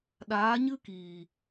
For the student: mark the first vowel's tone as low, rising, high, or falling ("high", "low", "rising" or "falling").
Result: rising